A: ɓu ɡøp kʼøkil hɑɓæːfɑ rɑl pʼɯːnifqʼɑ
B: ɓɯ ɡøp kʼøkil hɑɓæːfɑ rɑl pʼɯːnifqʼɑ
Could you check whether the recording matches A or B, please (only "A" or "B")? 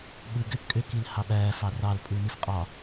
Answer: B